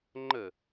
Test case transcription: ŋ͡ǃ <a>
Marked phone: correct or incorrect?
incorrect